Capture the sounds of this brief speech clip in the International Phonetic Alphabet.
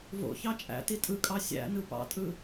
v o̰ ç ɑ t͡ʃʼ æ̰ t i tʼ ɯ kʼ ɑ sʲ æ̰ n ɯ p ɑ̰ tʼ ɯ

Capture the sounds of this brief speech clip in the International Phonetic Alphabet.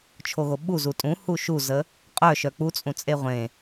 t͡ʃʰ o ɣ o ɓ u z u tʼ ũ h u ʃ u z ə | qʼ œ ʃ œ k͡p u t͡sʼ ũ t͡sʼ e ʁʷ ẽ

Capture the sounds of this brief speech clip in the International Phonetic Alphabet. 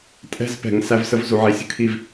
tʼ ɛ̤˦ z p ɛ̤˨ ŋ s æ˦ v s ə˦ v z u˨ ʕ i˨ sʲ ə̤˦ kʰ i˦ v

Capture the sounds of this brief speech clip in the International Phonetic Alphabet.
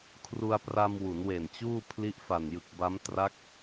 kʰ r u˧ a̯ p r a˧ m w u˩˦ n w e˨˩ n t͡ɕ uː˥˩ pʰ l i˦˥ ʔ f a˨˩ n j ɯ˨˩ k̚ b a˦˥ m t r a˦˥ k̚

